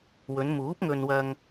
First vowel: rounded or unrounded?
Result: rounded